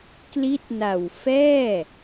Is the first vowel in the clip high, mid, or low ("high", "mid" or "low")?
high